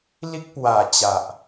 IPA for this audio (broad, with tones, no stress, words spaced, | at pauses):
li˦k̚ pwa˨˩t͡ɕa˨ʔ